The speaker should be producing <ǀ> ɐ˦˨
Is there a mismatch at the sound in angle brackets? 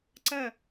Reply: no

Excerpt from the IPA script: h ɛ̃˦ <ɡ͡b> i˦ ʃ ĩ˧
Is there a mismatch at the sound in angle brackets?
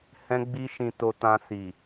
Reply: no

